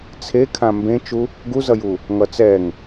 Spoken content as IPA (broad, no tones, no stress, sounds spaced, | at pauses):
t͡sʰ e kʰ ã m b ẽ t͡ʃ u | ɡ u z ʌ j u | ŋ ʌ t͡s ɛ ŋ